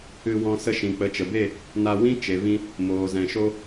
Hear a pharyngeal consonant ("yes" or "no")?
no